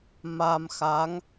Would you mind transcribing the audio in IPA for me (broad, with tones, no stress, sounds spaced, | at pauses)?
m a˧ m x a˧˥ ŋ